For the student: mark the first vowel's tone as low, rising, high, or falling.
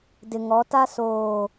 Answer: low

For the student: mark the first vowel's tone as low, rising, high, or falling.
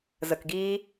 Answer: low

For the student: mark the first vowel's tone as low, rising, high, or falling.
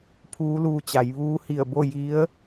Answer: rising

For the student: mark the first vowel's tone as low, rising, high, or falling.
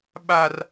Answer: high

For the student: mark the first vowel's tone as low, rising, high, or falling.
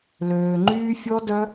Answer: low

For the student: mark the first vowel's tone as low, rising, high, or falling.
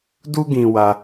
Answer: high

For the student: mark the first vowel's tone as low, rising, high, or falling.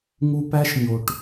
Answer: low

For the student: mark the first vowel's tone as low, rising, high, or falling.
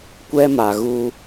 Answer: high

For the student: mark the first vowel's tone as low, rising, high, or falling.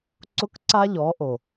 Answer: high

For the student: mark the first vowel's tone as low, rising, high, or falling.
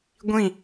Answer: falling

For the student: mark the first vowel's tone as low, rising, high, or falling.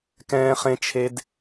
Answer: high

